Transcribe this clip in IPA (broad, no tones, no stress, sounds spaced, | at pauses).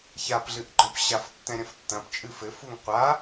ç a p ɮ ɨ ʔ ɡ͡ǃ ɔ̃ p ɕ a f tː ɛ̃ ɾʲ ɐ̃ f tː ɐ̃ p t͡ʃʼ ɨ f ɘ f u ŋ qʷ a